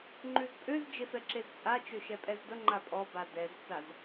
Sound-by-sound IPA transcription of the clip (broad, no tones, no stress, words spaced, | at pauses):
ŋ͡ǃʉzpʼøz d͡ʒefɛǁezt͡sʼa t͡ʃøʃɛpʼɛzdə ŋ͡ǃapʼɔba dɛzt͡saz